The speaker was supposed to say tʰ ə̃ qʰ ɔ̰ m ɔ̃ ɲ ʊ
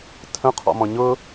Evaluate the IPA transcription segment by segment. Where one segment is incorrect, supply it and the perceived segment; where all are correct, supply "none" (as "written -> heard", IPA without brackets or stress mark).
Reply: none